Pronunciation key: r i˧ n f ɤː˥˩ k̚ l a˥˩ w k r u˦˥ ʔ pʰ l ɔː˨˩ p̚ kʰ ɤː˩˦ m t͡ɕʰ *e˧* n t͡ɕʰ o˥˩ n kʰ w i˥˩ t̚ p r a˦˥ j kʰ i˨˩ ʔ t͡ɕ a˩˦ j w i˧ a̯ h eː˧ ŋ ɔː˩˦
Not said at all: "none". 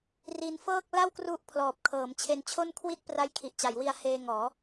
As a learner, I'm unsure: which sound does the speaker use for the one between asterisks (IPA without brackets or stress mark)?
e˧